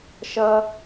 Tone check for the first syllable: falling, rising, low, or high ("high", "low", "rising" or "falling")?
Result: high